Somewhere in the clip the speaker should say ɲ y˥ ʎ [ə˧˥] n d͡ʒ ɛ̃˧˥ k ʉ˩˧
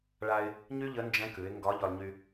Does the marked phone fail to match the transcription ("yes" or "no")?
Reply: no